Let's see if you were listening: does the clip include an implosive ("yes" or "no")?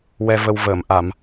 no